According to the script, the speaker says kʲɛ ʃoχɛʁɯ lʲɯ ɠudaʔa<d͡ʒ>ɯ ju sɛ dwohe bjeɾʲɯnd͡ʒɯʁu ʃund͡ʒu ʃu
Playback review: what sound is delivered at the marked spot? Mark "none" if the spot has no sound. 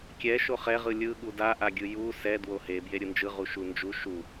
ɡʲ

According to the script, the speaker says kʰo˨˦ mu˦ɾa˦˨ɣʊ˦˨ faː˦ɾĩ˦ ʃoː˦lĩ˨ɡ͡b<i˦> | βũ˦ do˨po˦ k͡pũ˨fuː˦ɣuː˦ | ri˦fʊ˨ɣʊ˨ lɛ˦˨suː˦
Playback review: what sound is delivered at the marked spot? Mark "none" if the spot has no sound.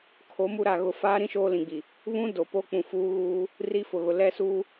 i˨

